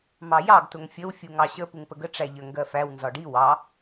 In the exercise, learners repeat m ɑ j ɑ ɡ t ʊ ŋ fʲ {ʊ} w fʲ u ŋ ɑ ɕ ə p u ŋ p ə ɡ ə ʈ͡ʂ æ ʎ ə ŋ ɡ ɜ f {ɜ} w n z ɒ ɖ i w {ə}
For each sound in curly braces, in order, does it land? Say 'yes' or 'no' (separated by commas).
no, no, no